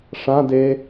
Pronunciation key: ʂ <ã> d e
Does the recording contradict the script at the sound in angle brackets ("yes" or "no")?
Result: no